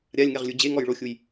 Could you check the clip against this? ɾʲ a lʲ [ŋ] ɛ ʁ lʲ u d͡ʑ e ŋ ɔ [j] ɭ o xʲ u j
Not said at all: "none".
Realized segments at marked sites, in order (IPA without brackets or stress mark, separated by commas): ŋ, j